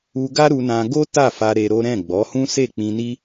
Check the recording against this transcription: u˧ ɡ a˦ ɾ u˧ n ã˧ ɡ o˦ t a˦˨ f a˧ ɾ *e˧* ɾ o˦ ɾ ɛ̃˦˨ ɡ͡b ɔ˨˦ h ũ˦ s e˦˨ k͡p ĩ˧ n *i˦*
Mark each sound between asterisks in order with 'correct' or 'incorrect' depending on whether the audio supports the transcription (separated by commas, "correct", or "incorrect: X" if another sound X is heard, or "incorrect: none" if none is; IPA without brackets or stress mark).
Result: correct, correct